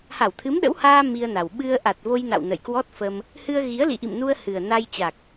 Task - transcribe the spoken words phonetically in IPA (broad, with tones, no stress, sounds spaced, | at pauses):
h a˧˩ w t̪ʰ ɨ˨˦ m ɗ ə̰˧˥ w h aː˧ m i˧ ə̯ n a˨˩ w ɓ ɨ˧ ə̯ ʔ a˨˩ t̚ v o˧ j n a̰˧˨ w n ə̰˧˨ j k w ɔ˦˥ t̚ f ə˧ m | h ɨ˧ ə̯ ɣ i˨˦ ə̯ l ḭ˧˨ ʔ ḭ˧˨ m n u˧ ə̯ h ɨ˨˩ ə̯ n a˧ j t͡ɕ a˨˩ k̚